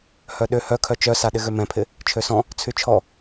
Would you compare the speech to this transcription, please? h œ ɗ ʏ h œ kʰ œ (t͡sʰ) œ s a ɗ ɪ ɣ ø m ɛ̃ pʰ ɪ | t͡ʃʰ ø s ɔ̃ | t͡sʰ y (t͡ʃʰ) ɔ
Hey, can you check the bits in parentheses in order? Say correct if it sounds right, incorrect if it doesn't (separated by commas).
incorrect, correct